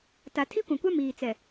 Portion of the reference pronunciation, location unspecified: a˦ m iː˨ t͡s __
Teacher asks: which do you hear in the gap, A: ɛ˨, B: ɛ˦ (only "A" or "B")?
A